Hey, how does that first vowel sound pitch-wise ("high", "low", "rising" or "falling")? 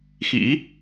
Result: rising